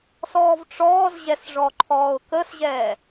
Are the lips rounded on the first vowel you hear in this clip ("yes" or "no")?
yes